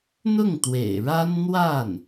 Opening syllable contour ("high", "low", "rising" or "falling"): falling